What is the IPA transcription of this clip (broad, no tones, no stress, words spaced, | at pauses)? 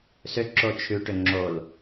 sʏ ǁot͡ʃʰʉ ʈʏŋ͡ǁol